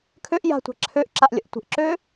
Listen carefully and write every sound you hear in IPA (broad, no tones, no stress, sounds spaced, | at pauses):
kʰ ø ʔ j a̤ tʷ a̤ ǁʰ ø ʔ ǁ a ʔ lʲ ə̰ ʔ tʷ ə̤ ʔ ǁ ø